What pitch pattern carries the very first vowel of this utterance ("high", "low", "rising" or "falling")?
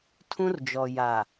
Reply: high